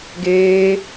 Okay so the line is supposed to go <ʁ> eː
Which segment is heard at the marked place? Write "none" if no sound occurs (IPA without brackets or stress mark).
ɡ